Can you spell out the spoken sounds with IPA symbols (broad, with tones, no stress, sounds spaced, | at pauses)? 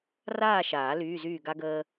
r aː˥˨ ʃ aː˨˩˦ l yː˧˥˧ z yː˥˨ ɡ a˥ ɡ əː˥